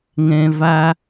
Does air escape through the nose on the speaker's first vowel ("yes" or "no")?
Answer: yes